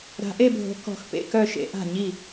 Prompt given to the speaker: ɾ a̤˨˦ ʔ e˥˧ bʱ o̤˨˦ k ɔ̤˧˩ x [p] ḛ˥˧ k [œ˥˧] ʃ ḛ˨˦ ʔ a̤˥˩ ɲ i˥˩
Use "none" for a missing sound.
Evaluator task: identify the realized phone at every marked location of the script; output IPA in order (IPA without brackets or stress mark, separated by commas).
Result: p, œ˥˧